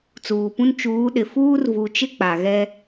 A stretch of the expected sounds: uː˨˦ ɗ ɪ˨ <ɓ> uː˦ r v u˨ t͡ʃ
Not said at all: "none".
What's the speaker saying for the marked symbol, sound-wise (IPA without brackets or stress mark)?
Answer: f